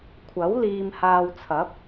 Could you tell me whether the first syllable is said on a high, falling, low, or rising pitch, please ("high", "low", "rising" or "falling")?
rising